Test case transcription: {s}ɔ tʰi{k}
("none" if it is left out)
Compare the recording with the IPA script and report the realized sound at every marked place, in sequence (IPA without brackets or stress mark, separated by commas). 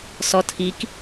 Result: s, k